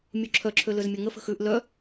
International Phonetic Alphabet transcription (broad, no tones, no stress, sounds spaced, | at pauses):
mʲ u ǁʰ œ ǁʰ ø l ø z mʲ ɐ ŋ ə f ə̤ x ʉ ʔ l œ